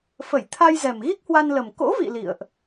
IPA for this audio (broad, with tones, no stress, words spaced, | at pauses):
fə˧˩jt̪ʰa˧jzɛ˨˩m ɣi˦˥k̚hwa˧nlə˨˩m ko̰˧˥vḭ˧˨ lḭ˧˨ə̯ʔ